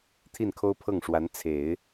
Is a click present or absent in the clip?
absent